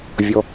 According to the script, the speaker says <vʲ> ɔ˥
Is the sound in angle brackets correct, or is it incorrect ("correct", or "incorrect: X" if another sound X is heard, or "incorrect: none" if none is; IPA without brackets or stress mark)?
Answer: correct